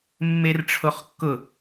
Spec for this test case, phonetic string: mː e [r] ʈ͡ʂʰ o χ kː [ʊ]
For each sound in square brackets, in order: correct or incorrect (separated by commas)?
correct, correct